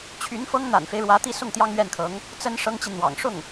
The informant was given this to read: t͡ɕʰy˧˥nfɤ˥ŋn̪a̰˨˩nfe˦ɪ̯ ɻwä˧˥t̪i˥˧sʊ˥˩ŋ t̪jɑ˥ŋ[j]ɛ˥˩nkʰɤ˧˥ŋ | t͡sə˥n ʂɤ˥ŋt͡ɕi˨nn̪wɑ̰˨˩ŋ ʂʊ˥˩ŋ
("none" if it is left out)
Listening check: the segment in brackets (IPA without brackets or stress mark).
ɥ